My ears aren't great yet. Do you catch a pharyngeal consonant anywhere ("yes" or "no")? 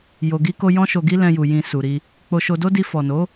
no